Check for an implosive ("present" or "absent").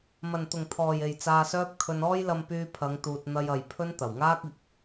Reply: absent